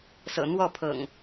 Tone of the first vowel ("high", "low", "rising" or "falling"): low